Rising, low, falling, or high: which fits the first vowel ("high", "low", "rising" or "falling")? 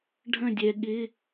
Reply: falling